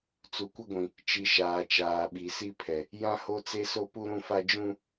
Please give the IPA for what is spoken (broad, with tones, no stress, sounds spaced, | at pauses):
t͡s u˨ kʷ ɪ˦ ɡʷ ĩ˨ | t͡ʃ i˨ ʃ aː˨ t͡ʃ aː˨ ɓ i˨ s i˦ pʰ ɛ˨ | j ã˦ h o˦ t͡s e˦ s o˦ p u˦ ɾ ũ˦ f a˦ d͡ʒ ũ˦